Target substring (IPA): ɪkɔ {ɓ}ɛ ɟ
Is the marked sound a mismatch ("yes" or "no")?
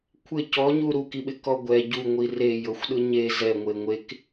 yes